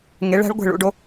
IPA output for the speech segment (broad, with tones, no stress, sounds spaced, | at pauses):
ŋ e˩˧ ɭ æ̤˩˧ ɭ ɡʷ e̤˧˩ ɭ ṵ˩˧ ɖ o˧